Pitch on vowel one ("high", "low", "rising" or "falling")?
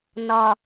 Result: low